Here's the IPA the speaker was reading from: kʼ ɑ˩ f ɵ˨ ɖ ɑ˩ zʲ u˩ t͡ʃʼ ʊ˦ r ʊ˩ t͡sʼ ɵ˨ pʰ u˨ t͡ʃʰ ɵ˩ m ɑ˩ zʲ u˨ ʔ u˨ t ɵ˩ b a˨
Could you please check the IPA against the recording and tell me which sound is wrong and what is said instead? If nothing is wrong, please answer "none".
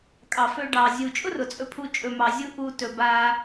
t͡ʃʰ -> t͡ʃʼ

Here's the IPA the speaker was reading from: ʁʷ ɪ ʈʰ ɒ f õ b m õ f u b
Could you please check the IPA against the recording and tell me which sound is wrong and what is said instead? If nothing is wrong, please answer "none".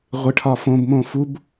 none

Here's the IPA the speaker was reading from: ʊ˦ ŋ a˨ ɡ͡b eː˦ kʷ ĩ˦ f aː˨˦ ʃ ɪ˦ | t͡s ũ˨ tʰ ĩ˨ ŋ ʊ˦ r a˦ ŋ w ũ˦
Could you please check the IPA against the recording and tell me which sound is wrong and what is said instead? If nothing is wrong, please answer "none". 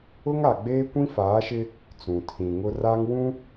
none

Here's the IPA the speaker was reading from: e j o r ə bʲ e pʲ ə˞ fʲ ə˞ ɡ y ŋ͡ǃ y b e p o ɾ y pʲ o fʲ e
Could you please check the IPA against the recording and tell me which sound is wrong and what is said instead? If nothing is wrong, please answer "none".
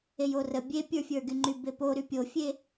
none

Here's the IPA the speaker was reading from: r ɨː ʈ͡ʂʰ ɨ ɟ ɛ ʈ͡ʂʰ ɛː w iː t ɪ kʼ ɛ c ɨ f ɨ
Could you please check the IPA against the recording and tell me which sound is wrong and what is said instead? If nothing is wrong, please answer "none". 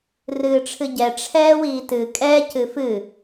ɪ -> ɨ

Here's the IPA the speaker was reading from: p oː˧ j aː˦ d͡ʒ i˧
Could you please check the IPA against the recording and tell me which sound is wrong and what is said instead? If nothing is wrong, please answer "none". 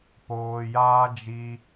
none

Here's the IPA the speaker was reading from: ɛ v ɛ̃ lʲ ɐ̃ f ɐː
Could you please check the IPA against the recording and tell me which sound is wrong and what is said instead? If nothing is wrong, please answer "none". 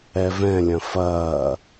none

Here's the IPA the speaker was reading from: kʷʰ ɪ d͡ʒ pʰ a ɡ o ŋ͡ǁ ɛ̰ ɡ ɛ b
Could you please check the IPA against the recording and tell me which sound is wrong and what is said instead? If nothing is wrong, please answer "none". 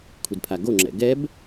d͡ʒ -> d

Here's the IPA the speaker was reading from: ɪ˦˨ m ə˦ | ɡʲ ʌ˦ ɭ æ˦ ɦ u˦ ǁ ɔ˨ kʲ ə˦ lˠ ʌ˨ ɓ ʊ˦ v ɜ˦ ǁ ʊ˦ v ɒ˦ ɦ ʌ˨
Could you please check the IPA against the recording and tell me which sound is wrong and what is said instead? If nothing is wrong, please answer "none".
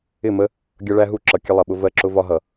ɔ˨ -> ʌ˨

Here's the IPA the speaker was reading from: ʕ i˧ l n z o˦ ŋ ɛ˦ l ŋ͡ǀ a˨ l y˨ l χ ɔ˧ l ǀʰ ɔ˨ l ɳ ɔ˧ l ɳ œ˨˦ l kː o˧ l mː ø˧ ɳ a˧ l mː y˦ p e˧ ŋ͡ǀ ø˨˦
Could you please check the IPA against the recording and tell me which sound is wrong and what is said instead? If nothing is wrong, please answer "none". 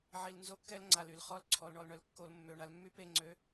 ŋ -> kː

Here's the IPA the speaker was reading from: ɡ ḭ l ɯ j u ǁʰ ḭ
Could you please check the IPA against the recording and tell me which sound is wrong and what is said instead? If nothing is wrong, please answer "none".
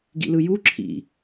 none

